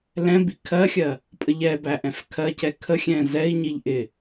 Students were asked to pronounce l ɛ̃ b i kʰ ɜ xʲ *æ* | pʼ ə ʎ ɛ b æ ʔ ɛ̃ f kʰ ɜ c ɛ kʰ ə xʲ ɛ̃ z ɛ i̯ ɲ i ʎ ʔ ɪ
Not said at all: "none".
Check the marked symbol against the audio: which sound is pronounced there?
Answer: ɜ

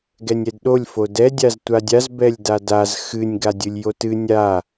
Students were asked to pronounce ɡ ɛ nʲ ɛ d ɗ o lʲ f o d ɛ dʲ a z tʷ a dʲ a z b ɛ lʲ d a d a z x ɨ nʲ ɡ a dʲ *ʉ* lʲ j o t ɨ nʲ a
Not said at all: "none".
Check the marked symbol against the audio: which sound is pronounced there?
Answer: ɨ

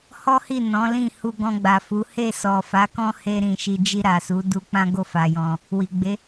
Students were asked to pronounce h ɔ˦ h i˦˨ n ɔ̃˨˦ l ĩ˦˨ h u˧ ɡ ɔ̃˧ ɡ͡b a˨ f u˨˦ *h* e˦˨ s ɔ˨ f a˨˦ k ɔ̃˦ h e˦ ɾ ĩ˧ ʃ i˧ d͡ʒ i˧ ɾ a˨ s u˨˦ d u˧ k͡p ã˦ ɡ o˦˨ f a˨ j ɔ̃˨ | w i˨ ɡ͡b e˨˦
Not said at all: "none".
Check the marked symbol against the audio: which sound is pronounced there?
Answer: h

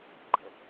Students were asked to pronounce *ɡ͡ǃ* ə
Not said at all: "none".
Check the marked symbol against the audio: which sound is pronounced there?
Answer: ɡ͡ǃ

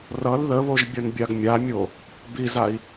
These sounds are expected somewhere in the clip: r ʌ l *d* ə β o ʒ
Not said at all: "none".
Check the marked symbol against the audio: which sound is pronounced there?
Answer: ð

